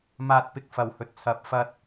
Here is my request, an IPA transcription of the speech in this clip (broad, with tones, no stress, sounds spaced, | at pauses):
m aː˧ t̚ p ɪ˧ k̚ f ɐ˨ w h ɵ˨ t̚ t͡sʰ ɐ˨˥ p̚ f ɐ˥ t̚